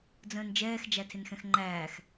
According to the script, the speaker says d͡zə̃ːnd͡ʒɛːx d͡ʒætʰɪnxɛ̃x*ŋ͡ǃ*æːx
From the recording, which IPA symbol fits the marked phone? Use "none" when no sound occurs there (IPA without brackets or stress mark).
ŋ͡ǃ